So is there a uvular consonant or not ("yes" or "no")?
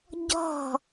no